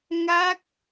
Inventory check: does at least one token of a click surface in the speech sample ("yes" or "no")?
no